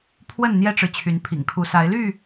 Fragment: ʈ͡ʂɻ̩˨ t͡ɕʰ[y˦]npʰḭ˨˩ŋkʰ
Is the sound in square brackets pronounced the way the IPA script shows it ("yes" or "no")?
no